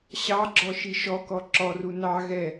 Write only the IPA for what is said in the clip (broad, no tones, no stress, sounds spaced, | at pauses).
ɕ ɑ ɡ͡ǁ ɔ ʃ i ʃ ɔ k ɔ ǁ ɔ r u n ɑ ɣ ɛ